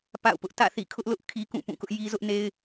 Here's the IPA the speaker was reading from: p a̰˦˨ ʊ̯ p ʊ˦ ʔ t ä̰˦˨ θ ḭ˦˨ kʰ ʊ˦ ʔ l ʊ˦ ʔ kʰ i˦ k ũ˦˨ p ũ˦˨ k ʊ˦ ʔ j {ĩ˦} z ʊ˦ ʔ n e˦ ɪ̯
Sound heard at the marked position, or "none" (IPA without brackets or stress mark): i˦